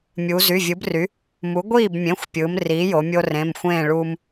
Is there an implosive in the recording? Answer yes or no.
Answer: no